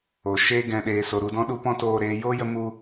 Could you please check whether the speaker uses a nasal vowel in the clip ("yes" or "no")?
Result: yes